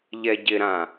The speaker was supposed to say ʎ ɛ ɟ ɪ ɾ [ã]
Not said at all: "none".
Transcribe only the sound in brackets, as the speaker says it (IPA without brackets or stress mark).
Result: ã